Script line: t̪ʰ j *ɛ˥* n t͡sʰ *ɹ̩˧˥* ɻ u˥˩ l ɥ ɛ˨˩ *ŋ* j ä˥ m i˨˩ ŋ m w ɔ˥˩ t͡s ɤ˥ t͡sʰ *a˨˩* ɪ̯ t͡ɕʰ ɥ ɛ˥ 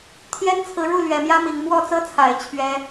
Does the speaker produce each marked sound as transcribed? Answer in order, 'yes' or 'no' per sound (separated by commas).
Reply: yes, yes, no, yes